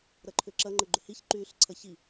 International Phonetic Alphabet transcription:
ɾ ɐ ǃʰ ʏ ǁ ɐ ŋ͡ǃ ə ɡ͡ǃ ʏ h i ç ǃ yː ɬ ǀʰ ɐ ç i

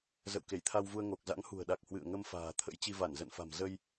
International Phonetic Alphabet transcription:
z ə̰˧˨ w k e˧˩ j t̪ʰ a˧ w v u˧ ə̯ ŋ o˨˩ k̚ z a̰˧˥ ŋ h ṳ˨˩ ə̯ ɗ a˨˩ k̚ h w ɨ̰˧˨ ə̯ ŋ ə˧ m f a̤ː˨˩ t̪ʰ ə̰˧˥ j t͡ɕ i˧ v a˧˩ n z ə̰˧˨ n f a̤˨˩ m z ə˧ j

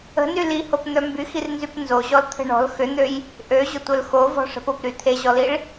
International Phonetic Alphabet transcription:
ə̤ n y l i h o p n̪ œ m b y x i r n z y p n z o ʑ ɔ l t̪ʰ ə̤ ɳ ɔ̤ l x ʏ n̪ ø j | ʔ ø ʑ ʊ tʷ œ l x o v ɔ̤ ʂ ə̤ p ʊ p ɾ y t̪ʰ e ʑ ɔ l i ɭ

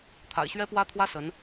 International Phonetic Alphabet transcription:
t̪ʰ a̰˨˩ ɪ̯ ɕ ɥ ɛ˥ p w ä˥ t̪ʰ w ä˥ s ə˧˥ n

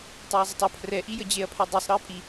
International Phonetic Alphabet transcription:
tˤ o ɐ̯ zˤ ə tˤ ʌ pʰ r ɛ ʔ i j ə d͡ʑ e ɐ̯ pʰ ɛ dˤ o sˤ ɾ ɤ ɐ̯ pʼ i

